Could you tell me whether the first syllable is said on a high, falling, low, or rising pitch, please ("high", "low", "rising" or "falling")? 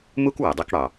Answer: high